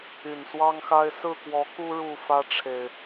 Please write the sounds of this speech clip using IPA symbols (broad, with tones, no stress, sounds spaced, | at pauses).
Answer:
y˨˩ n s w ɑ˦ ŋ x a˦ ɪ̯ s ɹ̩˥˨ k w ɔ˨˦ k u˦ ɻ u˥˨ f ä˦ ʈ͡ʂʰ e˨˩ ɪ̯